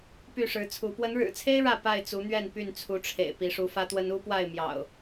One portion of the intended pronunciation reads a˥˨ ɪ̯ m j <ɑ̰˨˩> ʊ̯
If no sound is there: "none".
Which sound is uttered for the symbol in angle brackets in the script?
ɑ̰˨˩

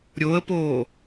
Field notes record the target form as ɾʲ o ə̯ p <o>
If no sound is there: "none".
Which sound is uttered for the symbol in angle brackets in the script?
oː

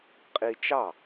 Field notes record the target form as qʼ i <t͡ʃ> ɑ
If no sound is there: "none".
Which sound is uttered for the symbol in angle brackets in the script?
t͡ʃ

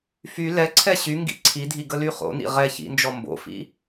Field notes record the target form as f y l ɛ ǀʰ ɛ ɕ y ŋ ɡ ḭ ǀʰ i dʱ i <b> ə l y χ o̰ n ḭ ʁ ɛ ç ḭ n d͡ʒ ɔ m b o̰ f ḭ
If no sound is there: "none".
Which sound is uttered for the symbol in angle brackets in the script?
ɡ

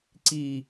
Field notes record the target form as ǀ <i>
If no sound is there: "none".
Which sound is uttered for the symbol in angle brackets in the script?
iː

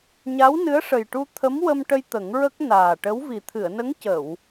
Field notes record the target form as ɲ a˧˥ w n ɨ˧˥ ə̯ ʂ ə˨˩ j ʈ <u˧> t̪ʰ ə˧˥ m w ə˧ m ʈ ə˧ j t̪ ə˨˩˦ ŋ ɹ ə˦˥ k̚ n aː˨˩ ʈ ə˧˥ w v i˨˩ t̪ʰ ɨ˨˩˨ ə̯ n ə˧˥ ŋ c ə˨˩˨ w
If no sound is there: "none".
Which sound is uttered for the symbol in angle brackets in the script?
u˧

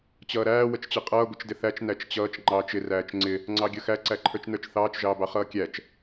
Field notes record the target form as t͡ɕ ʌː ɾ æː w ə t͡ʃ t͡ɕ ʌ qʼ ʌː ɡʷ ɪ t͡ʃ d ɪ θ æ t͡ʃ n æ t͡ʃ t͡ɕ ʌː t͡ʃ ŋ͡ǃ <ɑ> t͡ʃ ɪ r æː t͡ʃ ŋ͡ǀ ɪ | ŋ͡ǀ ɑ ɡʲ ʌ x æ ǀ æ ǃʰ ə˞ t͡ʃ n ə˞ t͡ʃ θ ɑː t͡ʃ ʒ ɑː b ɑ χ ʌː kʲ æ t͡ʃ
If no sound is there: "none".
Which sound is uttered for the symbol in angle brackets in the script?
ɑː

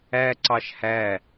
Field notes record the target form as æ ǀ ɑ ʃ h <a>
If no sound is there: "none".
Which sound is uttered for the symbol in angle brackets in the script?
æ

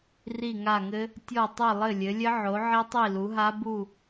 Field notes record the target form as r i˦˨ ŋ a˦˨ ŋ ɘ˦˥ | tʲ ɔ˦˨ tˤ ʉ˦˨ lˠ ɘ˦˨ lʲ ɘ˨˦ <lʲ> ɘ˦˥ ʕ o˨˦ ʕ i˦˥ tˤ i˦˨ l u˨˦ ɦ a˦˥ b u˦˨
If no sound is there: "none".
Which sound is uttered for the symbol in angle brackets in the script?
lʲ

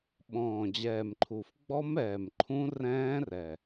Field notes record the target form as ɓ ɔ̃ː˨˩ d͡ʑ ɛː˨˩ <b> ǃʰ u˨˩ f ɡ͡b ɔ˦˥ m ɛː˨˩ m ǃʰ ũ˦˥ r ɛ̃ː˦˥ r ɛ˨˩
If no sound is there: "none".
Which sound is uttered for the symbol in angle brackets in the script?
m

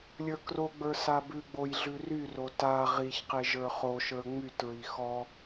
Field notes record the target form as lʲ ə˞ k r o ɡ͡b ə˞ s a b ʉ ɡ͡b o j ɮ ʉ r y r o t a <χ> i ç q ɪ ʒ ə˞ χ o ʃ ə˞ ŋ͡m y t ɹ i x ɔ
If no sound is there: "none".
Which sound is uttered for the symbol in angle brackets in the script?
ʁ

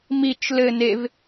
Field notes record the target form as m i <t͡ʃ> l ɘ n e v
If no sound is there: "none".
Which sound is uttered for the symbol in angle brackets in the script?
t͡ʃ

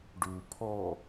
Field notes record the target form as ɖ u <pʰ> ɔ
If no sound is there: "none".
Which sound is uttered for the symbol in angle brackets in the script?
pʰ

